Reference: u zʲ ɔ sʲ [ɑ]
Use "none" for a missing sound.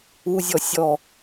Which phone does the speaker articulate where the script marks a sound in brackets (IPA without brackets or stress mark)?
ɔ